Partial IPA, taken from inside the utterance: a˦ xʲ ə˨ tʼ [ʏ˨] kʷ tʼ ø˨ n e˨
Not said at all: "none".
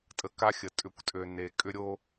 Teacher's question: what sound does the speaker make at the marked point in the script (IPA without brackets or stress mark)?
ʏ˨